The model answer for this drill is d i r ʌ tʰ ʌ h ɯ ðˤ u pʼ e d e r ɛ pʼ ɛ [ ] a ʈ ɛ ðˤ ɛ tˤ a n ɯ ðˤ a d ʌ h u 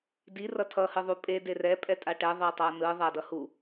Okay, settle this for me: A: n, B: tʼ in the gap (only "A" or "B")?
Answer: B